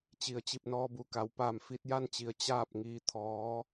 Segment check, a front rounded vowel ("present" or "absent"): absent